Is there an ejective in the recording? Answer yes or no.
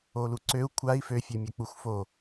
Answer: no